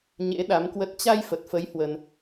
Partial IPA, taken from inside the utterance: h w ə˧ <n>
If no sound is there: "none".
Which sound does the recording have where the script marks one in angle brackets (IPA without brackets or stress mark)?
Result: n